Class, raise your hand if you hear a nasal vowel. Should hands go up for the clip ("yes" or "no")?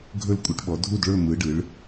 no